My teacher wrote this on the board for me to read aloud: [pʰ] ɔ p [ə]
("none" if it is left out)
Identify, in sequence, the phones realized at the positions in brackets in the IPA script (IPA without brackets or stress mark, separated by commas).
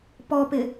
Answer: p, ɪ